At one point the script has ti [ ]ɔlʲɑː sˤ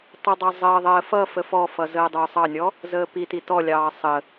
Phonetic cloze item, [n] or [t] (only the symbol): t